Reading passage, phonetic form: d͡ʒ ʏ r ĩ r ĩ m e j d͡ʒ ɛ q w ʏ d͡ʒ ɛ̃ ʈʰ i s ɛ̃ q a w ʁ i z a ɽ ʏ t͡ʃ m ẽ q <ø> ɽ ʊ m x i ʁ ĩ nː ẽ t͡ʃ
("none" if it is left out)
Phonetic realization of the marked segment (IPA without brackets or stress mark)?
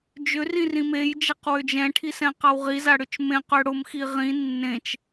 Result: ø